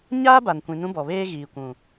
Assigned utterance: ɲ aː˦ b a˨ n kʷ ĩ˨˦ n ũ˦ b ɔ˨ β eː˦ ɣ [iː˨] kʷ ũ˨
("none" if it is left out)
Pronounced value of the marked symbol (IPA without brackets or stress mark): iː˨